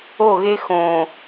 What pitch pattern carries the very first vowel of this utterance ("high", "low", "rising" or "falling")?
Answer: falling